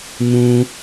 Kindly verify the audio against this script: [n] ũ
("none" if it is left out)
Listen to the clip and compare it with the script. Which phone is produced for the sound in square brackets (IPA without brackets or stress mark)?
n